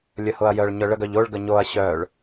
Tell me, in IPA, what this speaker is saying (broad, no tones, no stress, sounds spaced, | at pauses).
lʲ ə h ʊ ɐ̯ j œ ɭ ɲ œ ɭ ə ɡ œ ʎ o ɭ ɡ ə ɲ o ɐ̯ ɕ œ ɭ